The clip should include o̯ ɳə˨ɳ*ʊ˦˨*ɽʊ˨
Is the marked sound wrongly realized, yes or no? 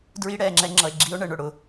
yes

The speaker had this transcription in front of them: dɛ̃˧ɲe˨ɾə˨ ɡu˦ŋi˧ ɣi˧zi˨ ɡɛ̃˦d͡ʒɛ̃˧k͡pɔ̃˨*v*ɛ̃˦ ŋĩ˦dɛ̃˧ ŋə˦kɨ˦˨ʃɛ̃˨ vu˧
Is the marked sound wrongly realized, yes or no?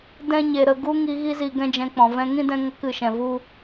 no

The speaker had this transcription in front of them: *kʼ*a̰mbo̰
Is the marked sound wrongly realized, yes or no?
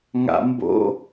yes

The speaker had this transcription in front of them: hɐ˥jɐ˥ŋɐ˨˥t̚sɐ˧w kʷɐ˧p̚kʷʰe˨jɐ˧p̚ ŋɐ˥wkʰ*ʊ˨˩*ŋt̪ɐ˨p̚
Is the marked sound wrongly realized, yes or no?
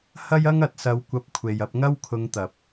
yes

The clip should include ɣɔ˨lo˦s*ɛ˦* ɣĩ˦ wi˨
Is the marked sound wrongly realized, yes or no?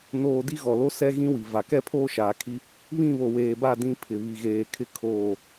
no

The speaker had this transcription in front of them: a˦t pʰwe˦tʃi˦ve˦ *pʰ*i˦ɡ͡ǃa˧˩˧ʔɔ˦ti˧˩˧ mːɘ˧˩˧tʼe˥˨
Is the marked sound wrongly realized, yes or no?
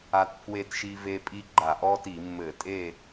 yes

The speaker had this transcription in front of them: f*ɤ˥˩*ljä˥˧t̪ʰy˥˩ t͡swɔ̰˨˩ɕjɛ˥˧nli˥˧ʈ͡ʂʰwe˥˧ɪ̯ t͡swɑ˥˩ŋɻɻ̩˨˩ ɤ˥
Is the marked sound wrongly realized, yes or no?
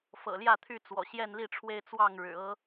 yes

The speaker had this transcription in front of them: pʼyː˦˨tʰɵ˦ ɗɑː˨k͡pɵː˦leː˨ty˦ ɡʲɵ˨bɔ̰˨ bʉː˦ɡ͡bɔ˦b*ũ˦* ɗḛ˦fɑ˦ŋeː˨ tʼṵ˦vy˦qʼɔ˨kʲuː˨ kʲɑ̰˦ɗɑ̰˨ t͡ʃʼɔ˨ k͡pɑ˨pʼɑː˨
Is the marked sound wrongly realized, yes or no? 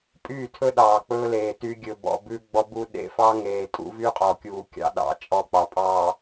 yes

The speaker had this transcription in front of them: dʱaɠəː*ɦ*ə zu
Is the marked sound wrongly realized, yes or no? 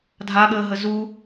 no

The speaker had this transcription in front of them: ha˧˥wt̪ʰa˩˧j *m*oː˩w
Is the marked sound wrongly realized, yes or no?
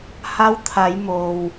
no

